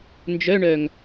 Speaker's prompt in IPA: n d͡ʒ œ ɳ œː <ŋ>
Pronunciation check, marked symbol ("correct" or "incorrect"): correct